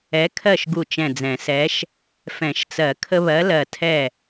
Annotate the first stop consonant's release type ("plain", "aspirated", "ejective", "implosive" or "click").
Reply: aspirated